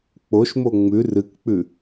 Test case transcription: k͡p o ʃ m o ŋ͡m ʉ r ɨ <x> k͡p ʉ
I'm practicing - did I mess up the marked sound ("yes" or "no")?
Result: yes